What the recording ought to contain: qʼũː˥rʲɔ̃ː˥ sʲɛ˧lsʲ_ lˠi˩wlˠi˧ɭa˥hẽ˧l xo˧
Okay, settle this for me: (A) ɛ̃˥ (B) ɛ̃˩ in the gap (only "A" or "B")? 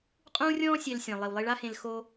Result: B